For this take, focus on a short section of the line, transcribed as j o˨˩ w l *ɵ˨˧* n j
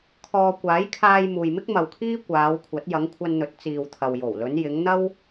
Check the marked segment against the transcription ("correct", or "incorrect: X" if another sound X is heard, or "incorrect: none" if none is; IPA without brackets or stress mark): correct